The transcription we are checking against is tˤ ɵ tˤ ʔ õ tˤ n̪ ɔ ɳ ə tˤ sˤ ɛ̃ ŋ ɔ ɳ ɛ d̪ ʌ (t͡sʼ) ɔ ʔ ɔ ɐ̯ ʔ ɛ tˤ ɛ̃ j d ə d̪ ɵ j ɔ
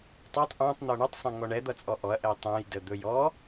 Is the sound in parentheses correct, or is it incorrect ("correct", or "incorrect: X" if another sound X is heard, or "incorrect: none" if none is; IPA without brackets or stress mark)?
correct